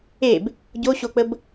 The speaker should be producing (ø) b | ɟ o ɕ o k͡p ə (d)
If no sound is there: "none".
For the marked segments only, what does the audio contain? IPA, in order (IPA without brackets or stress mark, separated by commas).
e, b